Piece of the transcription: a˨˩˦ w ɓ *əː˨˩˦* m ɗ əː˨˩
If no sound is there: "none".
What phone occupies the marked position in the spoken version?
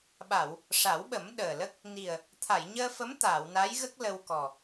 ə˨˩˦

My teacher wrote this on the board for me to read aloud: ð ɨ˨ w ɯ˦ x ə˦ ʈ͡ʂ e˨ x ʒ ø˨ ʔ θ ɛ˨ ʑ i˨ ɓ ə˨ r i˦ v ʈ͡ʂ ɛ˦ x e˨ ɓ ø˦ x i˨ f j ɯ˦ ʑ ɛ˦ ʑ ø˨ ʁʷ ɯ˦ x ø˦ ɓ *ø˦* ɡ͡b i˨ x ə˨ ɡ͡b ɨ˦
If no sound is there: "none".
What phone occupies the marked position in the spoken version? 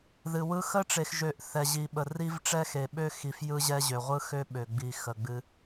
ø˨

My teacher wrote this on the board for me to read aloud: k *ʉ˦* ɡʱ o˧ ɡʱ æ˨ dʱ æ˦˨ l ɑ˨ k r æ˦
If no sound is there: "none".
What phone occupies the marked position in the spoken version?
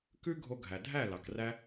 ʉ˦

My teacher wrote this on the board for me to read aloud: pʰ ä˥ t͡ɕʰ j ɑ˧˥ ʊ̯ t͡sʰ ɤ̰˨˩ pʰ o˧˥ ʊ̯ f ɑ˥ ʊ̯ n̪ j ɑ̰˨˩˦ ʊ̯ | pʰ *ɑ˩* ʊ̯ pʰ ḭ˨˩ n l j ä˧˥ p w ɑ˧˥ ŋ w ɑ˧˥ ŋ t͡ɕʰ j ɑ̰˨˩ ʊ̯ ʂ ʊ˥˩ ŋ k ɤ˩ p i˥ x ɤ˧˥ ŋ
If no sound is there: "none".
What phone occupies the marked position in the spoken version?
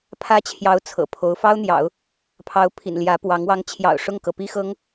ɑ˧˥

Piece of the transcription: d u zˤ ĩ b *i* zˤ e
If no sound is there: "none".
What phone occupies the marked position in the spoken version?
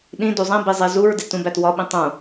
i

